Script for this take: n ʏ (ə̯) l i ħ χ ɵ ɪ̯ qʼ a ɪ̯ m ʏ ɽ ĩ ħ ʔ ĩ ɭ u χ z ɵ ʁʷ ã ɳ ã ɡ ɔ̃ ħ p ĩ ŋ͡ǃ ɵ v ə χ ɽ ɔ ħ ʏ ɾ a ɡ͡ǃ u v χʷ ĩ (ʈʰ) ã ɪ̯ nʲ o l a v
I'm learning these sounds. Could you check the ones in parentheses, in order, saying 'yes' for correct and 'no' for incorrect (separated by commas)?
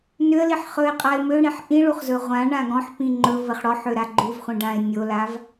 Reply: yes, no